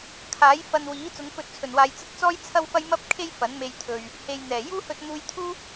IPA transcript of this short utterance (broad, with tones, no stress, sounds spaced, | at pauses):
kʰ aː˨˥ j f ɐ˧ n w iː˨˥ t͡s ʊ˨˧ ŋ f ɵ˧ t̚ t͡sʰ ɵ˨˩ n w aː˨ j t͡s ɐ˥ t̚ t͡s ɔː˥ j t͡sʰ ɐ˥ w f ɐ˥ j m ɐ˥ p̚ kʰ e˥ j f ɐ˨˥ n m e˧ j t̪ʰ ɵ˨ ɥ | h e˨ j n̪ ɛː˨˩ j uː˥ h ɵ˧ t̚ n̪ uː˧ j t̪ʰ uː˥